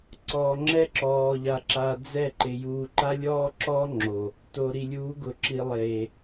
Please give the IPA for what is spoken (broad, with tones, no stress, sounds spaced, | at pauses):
ǀ ɔ˨ ŋ͡ǁ ɛ˦ ǁ ɔː˨ ʎ a˨ ǁ a˨ d͡z ɛ˦˨ ǃ ɪ˨ j uː˨ ǃ a˦ lʲ ɔː˦ ǁ ɔː˦ ŋ͡ǁ o˨ | t o˨ ɾ i˨ lʲ uː˨˦ ɡ ʊ˨ ǁ i˨ lˠ eː˨